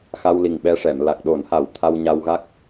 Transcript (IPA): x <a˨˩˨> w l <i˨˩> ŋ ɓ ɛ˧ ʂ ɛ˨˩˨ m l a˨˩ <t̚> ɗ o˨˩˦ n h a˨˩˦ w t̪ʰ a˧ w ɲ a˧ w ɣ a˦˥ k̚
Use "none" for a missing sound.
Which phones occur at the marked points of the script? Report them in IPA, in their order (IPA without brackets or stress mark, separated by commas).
a˧, i˨˩, k̚